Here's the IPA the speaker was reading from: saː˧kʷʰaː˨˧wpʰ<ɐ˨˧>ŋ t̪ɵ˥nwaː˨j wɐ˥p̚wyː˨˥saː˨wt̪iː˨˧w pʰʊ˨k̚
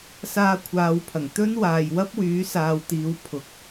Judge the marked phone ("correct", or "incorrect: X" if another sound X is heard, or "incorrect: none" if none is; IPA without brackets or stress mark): incorrect: ɐ˨˩